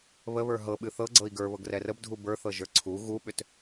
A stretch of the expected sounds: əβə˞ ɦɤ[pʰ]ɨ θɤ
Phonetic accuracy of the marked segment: incorrect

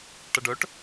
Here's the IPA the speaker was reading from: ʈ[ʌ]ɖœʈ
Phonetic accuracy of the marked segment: correct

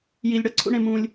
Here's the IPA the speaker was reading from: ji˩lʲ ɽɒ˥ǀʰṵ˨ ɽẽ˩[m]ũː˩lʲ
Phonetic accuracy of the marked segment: correct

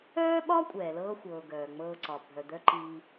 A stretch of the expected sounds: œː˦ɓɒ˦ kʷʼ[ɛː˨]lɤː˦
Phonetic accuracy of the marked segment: correct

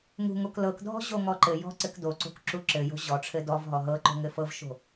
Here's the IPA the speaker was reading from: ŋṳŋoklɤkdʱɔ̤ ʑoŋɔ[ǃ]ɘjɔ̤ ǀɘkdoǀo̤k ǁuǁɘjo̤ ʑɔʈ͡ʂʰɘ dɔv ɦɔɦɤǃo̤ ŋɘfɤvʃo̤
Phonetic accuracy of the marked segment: correct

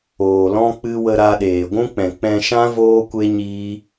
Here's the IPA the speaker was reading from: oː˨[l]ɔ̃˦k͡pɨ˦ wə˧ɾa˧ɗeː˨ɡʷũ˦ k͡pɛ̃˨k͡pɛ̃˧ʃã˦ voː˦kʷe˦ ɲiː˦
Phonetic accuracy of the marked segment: correct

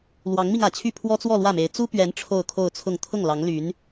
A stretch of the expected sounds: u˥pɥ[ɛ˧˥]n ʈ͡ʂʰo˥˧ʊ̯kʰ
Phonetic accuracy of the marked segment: correct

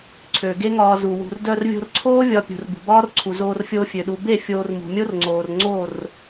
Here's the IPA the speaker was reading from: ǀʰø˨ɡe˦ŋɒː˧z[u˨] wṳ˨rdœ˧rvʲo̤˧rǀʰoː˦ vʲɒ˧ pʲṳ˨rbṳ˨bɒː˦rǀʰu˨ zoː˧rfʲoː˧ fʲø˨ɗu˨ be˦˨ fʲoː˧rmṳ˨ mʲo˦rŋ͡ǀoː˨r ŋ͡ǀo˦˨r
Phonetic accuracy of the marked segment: correct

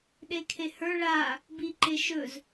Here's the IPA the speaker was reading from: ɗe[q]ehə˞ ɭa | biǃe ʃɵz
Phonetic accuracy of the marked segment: incorrect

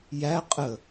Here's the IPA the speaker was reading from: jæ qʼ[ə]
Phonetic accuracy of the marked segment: correct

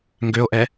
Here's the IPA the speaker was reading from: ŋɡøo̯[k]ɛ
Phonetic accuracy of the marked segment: incorrect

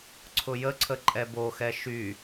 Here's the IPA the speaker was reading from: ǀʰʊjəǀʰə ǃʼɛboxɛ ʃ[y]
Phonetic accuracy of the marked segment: correct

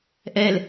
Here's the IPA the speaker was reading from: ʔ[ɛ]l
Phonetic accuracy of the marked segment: correct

